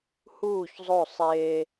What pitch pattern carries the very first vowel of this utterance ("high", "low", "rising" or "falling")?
falling